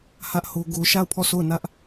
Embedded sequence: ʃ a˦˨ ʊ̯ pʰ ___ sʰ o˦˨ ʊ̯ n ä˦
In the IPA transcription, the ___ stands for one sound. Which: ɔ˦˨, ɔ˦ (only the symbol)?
ɔ˦˨